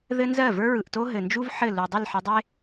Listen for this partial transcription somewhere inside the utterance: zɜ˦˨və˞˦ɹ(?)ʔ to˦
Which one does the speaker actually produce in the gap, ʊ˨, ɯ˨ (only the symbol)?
ɯ˨